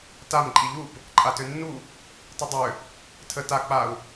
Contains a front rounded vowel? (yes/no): yes